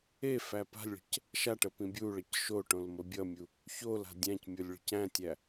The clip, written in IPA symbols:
e f æ p a̤ lʲ ɭ ə̤ c | ʃ a ʈ ə p ĩ bʲ u ɭ ʌ c ʃ o ʈ õ l m ə bʲ ʌ mʲ u | ç o l a̤ dʲ æ̃ c mʲ o lʲ ɭ ə̤ c æ̃ tʲ æ

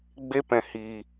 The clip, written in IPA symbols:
ɡ͡b e˦ p ɛ̃˧ h iː˧

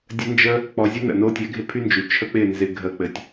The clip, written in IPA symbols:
dʲ ə˦ n d͡ʒ ə˦ | k͡p ɔ˧ zʲ ɘ˦ n ə̰˨ n o˦ tʲ ɛ˨˦ ɡʱ ɪ˦ pʰ y˦ n d͡ʒ y˨ t͡ʃʰ ə˦ k͡p ɪ˦˨ n z ɪ˧ ɡʱ ə˧ k͡p ɘ˨ tʲ

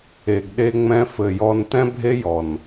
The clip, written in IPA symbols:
e˨ ɡ ɗ e˧ ŋ͡m ɛ̃˧ f ɘ˨ j ɔ˧ n t̪ ɛ̃˦ bʱ e˦ j ɔ˨ n

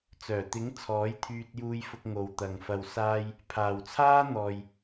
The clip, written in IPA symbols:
t͡s œː˨˩ t̪ ɪ˨˥ ŋ t͡sʰ ɔː˨˥ j t̪ʰ yː˧ t̚ j uː˧ j f ʊ˧ k̚ ŋ o˨ w t̪ ɐ˨ ŋ f ɐ˨ w s aː˧ j | pʰ aː˨ w t͡sʰ aː˥ n̪ ɔː˨ j

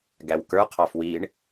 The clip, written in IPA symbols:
ɡ æ w k ə˞ qʰ ɑ f w i ɳ

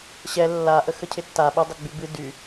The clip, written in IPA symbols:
ɕ ɛ lː a ʔ ə x ə cʰ ɪ tː a ɓ ɪ dˤ ɪ ɡ͡b y b ɨ d y

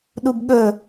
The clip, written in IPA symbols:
ɗ u b ɠ ɵ

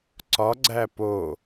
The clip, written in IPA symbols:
ǀ ɒ ɡ͡ǀ æ p o

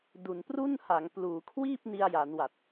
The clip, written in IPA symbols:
d u˨˩ n p r u˥˩ n h a˩˦ ŋ p l uː˩˦ kʰ w iː˥˩ p̚ n i˧ a̯ j a˩˦ n w a˨˩ t̚

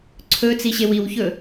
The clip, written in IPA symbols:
ǀʰ ɵ t͡s i ɕ e w i w ç ɵ

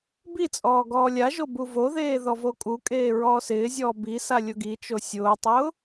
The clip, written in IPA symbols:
b i t͡sʼ ɔː ɡ ɔː lʲ a ʒ o b u v o ð eː ð ɔ v o kʼ u kʼ eː ɹ ɔː s ɪː zʲ ɔː b i s a lʲ ʊ ɡ i t͡ʃ o sʲ ʊː tˤ ʊː

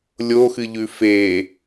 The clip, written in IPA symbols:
lʲ o x ɨ ʎ ʉ f e

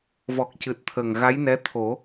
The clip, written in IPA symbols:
v ɔ˨˩ k̚ c ɨ˨˩ t̚ t̪ʰ ə˨˩ ŋ ɣ a˧˥ j n ɛ˧˥ t̪ʰ o˨˩˦

